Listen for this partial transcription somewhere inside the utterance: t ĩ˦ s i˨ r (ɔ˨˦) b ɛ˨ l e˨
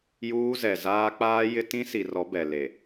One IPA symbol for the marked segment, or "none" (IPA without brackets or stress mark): ɔ˨˦